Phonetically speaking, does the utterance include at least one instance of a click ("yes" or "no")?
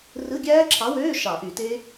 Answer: yes